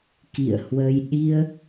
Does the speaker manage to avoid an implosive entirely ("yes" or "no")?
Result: no